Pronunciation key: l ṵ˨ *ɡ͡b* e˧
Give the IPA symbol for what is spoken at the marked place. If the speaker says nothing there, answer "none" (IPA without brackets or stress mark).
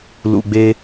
ɡ͡b